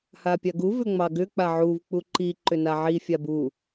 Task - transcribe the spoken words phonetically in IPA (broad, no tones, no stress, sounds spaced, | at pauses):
h a pʲ a ɡ u v ʏ ŋ͡m ɑ ɡ ʏ k͡p a ʕ u v k͡p u ǃ i ǃ ʏ n a ʕ i fʲ a b u